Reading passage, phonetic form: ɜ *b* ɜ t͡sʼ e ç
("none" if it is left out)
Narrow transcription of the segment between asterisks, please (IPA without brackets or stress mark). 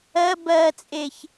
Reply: b